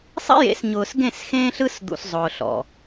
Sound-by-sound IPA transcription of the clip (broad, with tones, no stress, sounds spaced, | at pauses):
sˤ ḭ˦ j ḛ˨˦ s ɲ ʊː˨ s ɡ ẽ˦˨ s x ẽː˦ ɬ ɯ˦ s d̪ ṵ˨ s zˤ ʊː˨ ɬ ɔ̰˨